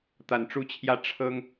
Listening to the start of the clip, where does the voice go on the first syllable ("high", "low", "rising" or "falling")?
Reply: low